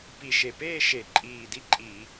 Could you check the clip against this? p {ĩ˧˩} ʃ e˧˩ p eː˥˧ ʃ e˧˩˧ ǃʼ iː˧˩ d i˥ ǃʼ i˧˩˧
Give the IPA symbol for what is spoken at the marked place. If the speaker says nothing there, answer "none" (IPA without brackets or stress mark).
i˧˩